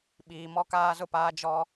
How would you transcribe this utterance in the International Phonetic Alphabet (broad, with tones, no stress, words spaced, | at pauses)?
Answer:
ɓiː˨ mɔ˦kaː˦zʊ˦paː˦ d͡ʒɔ˦